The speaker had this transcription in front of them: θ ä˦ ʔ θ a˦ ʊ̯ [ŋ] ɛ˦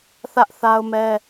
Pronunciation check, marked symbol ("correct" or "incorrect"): incorrect